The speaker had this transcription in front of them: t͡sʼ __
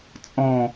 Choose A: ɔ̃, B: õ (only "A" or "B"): A